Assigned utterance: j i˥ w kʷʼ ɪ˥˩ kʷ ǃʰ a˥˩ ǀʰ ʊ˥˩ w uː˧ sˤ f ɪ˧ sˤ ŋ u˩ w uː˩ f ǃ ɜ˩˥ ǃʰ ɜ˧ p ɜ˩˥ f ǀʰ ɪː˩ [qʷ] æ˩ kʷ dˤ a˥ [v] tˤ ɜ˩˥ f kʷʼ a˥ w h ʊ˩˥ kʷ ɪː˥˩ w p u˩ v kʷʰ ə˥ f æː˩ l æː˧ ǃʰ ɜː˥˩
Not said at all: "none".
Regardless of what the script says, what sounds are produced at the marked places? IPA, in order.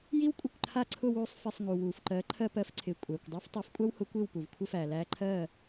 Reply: kʷʼ, f

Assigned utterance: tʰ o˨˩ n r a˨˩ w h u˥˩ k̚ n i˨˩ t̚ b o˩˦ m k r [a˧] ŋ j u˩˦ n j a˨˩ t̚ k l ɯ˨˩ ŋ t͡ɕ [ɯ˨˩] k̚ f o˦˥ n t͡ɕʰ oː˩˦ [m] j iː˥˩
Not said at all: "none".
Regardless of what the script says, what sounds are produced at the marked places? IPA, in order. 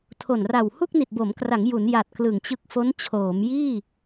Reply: a˩˦, ɯ˦˥, m

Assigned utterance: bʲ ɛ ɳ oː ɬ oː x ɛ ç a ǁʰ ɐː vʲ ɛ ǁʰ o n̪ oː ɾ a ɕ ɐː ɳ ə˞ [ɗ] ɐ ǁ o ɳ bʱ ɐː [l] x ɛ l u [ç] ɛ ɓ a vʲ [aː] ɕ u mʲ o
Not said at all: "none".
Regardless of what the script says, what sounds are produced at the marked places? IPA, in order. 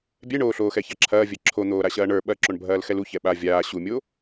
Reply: ɓ, l, ç, aː

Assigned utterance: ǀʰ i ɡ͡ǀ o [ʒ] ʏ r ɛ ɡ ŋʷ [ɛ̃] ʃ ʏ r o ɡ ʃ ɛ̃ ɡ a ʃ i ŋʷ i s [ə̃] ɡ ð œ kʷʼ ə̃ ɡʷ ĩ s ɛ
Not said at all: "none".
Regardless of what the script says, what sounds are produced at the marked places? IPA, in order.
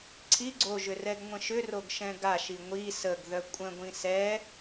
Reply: ʒ, ə̃, ə

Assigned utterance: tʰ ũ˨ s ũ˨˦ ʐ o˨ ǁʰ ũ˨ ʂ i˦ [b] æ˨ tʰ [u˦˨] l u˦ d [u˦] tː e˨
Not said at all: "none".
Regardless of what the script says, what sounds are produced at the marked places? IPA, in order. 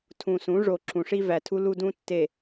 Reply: v, u˦, ũ˦

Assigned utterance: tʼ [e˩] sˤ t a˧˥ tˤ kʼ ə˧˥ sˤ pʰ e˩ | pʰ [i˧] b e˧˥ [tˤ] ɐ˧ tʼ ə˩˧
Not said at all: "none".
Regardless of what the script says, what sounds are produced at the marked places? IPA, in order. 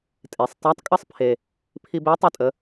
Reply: e˩, i˧, tˤ

